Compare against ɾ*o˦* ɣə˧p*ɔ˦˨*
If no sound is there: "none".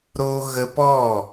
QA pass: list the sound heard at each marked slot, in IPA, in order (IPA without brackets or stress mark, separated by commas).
o˦, ɔ˦˨